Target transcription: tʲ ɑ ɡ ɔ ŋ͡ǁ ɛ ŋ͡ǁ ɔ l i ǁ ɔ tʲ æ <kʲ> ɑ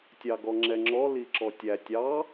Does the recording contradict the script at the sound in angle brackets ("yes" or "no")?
yes